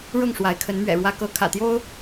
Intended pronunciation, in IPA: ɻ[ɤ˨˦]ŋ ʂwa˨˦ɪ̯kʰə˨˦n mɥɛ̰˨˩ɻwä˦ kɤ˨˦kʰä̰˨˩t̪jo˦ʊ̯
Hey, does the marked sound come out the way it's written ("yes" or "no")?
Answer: no